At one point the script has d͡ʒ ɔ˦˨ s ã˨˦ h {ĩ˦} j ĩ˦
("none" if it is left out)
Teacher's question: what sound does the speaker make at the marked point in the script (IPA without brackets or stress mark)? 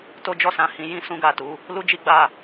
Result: ĩ˧